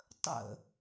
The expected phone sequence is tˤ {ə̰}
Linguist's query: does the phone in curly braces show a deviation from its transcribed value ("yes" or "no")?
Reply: no